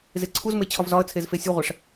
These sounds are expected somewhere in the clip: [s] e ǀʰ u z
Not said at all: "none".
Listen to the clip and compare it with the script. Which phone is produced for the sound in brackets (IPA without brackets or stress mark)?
z